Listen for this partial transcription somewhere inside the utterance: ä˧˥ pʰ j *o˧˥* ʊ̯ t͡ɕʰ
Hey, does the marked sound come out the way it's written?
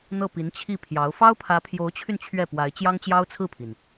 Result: yes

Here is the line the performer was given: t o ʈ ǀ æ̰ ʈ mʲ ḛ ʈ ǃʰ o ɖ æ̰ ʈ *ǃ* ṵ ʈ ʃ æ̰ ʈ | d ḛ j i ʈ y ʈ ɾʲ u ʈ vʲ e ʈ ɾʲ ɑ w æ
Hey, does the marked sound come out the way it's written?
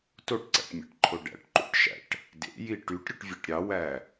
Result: yes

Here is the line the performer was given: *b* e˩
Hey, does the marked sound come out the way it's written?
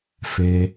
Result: no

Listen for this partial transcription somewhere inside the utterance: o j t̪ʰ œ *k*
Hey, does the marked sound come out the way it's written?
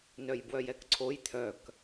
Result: yes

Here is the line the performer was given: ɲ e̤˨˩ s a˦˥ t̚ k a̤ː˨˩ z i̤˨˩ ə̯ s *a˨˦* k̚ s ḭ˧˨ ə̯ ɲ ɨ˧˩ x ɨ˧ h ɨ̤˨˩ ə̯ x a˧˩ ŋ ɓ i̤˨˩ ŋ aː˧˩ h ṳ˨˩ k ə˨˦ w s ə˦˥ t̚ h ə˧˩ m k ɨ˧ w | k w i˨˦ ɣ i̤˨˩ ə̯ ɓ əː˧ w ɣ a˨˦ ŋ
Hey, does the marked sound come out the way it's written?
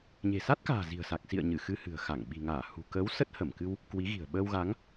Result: no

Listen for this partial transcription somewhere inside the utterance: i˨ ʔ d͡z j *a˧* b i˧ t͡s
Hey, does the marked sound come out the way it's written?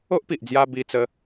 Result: yes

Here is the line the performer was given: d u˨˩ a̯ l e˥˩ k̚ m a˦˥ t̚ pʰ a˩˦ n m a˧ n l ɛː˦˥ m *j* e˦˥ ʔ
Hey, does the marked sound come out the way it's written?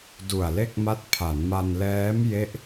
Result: yes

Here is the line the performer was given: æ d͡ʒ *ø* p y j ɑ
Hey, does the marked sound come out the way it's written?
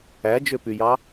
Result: yes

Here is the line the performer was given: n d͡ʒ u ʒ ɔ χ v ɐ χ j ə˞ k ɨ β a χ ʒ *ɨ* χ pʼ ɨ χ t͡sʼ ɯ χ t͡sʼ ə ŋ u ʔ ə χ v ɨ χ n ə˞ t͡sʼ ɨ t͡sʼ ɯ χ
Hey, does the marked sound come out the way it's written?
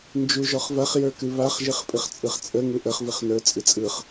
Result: yes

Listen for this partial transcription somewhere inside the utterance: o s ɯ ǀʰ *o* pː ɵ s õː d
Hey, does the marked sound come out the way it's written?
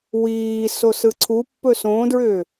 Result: no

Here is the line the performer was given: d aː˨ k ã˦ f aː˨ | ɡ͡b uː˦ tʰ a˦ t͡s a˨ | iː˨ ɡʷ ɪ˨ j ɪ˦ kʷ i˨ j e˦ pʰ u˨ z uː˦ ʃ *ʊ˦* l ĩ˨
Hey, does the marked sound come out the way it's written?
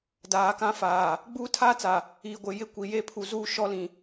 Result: no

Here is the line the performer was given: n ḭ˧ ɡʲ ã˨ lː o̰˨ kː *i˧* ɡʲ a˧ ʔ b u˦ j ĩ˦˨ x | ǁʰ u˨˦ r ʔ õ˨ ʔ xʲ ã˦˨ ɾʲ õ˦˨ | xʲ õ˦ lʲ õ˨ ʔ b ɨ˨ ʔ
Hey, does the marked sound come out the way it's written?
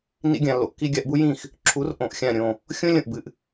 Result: yes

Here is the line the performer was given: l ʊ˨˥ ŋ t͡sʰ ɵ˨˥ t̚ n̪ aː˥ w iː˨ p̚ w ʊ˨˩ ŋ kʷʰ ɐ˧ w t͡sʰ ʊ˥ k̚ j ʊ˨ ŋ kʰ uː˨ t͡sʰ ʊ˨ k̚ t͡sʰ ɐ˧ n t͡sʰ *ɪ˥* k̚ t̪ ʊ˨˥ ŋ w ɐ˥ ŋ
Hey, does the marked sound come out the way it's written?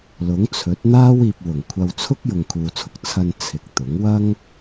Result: no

